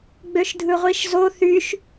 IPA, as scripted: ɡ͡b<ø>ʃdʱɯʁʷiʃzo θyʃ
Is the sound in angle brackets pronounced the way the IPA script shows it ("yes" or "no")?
yes